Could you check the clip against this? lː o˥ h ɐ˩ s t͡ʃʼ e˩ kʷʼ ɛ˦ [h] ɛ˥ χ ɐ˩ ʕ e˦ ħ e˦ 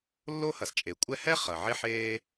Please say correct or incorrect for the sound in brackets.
correct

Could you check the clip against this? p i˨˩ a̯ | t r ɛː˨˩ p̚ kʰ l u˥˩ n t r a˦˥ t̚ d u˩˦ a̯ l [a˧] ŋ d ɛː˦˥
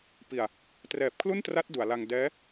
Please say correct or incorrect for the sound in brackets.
correct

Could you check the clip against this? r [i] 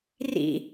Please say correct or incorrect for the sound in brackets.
incorrect: ḭ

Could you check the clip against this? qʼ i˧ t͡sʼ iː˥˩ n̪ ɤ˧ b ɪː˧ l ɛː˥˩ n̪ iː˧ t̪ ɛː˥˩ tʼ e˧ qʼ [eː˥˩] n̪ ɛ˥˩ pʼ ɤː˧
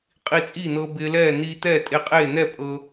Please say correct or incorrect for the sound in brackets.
correct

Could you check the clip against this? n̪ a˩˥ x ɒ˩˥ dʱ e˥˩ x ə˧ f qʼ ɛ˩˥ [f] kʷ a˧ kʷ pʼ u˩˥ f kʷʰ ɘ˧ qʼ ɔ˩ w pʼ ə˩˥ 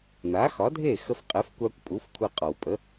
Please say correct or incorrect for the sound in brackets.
correct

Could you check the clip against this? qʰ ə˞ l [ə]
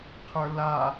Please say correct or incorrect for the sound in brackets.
incorrect: a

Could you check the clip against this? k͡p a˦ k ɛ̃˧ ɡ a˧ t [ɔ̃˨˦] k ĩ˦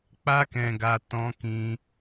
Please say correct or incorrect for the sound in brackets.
incorrect: ɔ̃˦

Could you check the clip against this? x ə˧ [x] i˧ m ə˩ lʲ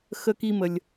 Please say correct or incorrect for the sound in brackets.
incorrect: k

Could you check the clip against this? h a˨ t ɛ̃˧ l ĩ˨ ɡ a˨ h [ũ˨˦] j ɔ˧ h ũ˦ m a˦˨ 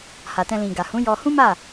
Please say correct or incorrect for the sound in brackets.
correct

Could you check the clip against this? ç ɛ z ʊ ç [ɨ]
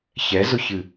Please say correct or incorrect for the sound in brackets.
correct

